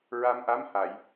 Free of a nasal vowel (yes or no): yes